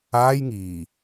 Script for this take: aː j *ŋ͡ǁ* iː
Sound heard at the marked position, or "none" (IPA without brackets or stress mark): ŋ